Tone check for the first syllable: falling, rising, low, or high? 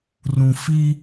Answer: low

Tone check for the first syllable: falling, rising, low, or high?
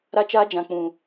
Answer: high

